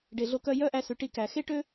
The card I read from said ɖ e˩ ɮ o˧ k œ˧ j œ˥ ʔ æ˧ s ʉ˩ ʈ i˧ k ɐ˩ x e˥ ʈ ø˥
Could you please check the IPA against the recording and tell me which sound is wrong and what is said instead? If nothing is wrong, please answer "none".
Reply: ɐ˩ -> æ˩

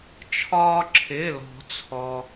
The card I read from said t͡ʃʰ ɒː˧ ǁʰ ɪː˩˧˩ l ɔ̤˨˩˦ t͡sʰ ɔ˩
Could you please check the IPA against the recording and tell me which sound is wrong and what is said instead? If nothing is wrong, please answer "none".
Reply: none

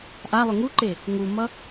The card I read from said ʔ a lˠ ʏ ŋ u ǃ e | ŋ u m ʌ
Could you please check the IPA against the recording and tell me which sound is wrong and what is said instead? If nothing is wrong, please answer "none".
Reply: none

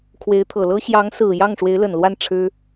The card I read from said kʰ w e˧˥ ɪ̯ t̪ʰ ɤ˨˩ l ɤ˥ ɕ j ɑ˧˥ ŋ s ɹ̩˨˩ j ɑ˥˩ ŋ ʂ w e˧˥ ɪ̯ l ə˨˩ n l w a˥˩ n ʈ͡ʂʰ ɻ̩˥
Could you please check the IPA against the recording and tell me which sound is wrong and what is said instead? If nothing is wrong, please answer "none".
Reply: none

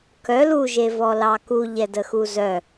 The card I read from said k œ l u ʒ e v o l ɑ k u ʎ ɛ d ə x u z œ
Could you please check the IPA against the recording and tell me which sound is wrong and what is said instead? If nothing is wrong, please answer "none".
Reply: o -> ɔ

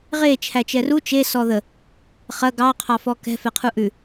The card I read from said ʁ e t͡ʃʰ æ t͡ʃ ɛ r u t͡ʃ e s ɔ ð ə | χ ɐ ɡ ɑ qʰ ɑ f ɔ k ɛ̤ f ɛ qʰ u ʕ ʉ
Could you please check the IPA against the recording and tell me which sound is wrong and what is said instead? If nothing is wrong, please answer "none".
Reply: ʕ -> ʔ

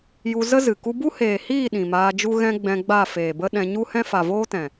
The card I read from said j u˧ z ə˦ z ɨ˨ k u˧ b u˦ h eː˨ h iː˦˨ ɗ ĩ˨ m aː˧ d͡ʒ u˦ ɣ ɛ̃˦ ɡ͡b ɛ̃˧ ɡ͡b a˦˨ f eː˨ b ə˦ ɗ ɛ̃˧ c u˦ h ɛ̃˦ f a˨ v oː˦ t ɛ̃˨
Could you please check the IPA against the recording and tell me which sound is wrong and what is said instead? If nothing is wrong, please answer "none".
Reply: c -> ɲ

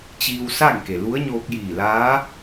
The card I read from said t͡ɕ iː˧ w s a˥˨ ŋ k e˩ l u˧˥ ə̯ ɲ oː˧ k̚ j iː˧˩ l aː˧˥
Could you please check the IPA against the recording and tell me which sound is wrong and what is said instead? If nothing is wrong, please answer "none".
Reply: none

